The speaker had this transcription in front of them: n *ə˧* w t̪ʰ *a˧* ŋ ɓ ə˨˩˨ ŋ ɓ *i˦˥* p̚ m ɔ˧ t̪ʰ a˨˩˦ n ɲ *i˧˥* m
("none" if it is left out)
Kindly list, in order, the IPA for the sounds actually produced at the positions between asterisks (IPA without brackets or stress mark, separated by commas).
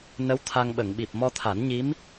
ə˧˥, a˧, i˨˩, i˧˥